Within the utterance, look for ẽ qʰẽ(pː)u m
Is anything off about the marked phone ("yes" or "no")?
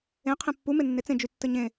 no